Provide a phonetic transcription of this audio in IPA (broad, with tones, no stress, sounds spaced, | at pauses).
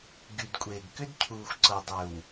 ɡ y˨ d kʷʼ eː˨ ɡ k ʏ˦ d cʰ uː˨ xʷ ǀ ɤ˨ dˤ ʏ˨ w